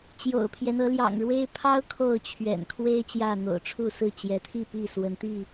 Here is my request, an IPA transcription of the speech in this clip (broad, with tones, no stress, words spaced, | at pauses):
t͡ɕjo̰˨˩ʊ̯pʰjɛ˦n ɤ˨˦ljɑ̰˨˩ŋɻwe˦ɪ̯ pʰɑ˦ʊ̯ kʰo˥˨ʊ̯t͡ɕʰɥɛ̰˨˩n kʰwe˦ɪ̯ t͡ɕjä˥˨n̪o̰˨˩ʊ̯ ʈ͡ʂʰu˥˨sɹ̩˥˨ t͡ɕjɛ˨˦t̪ʰi˥˨pi˥˨ swə˨˦nt̪i˥˨